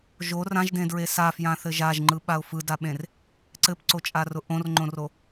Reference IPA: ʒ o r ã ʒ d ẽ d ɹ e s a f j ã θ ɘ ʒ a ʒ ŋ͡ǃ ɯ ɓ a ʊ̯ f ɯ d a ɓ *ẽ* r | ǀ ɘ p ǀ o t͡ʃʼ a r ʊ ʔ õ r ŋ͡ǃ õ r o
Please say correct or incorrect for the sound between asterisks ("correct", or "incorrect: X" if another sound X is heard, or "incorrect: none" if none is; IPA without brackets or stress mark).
correct